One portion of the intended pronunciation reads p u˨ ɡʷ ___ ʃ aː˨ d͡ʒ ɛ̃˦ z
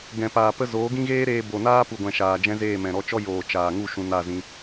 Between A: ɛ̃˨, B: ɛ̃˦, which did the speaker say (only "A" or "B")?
A